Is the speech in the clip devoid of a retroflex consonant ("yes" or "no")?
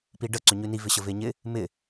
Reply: no